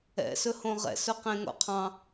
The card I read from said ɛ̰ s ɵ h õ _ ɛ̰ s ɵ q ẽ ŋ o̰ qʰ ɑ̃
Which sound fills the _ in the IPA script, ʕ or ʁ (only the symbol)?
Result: ʁ